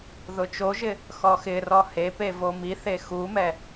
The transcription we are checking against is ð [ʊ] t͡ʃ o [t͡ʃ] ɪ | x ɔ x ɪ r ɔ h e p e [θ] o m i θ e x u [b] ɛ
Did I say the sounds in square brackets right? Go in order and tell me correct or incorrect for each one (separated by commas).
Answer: correct, incorrect, incorrect, incorrect